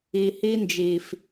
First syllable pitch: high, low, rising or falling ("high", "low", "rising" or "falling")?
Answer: low